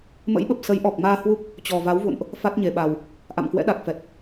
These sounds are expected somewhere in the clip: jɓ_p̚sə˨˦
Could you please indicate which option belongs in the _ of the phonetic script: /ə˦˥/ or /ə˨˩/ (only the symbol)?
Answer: ə˨˩